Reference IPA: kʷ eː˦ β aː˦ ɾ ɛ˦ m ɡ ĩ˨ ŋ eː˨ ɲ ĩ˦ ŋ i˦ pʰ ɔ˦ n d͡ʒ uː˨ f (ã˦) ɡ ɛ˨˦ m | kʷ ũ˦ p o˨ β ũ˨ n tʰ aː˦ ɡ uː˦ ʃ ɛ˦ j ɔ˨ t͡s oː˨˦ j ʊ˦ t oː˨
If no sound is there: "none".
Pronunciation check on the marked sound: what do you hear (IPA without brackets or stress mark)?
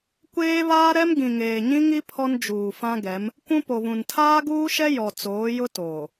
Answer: ã˦